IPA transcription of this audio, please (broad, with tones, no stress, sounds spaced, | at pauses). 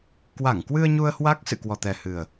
k w a˧˩ ŋ k w ɨ˧ ə̯ ɲ u˧ ə̯ h w a˦˥ k̚ s ɨ̰˧˨ k w ɔ˨˩ t̪ ɛ˨˩ h ɨ˨˩ ə̯